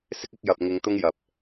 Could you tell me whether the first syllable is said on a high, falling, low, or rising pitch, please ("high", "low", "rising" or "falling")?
high